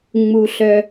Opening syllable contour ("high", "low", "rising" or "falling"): high